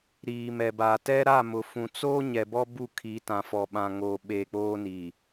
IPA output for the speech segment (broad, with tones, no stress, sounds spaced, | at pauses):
ɾ iː˨ m ɛ˨ b aː˨ t ɛ˦ ɾ a˦˨ m ʊ˨ f ũ˨ t͡s oː˦ ɲ ɛ˨ b ɔ˦ b u˦˨ kʰ iː˨˦ t ã˨ f ɔ˨ ɓ ã˨ ŋ oː˨ ɓ eː˨ k͡p oː˦ n i˨